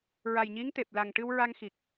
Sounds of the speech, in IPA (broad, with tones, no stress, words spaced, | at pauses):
ɹa˨˩jɲi˧˥ŋt̪e˨˩p̚la˨˩ŋ ʈɨ˧wɹa˧ŋxi˨˩k̚